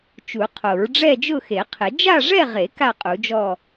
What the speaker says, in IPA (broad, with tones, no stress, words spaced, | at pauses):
t͡ʃu˨˩˦qʰo˨˩˦ɹ ɖ͡ʐɛ˥˧d͡ʒʊ˥˧xe˨˩˦qʰɪ˨˩˦ d͡ʒa˥˧ʐɛ˥˧ʁe˨˩˦ ka˥˧qʼu˨˩˦d͡ʒɔ˥˧